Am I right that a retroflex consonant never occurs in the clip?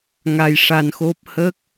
no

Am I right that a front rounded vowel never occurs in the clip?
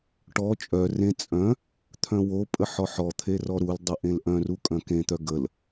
no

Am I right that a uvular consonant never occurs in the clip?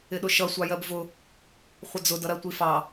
no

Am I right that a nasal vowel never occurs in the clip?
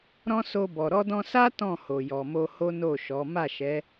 no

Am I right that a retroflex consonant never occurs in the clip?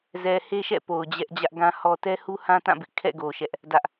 yes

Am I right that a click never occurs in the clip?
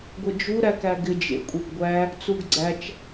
no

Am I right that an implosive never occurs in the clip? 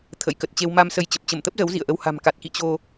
yes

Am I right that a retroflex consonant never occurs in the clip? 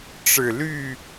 no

